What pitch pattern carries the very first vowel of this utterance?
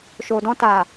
low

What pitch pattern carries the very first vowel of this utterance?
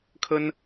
high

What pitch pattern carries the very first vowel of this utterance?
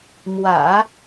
low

